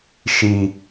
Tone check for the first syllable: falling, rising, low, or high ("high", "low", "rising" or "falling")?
high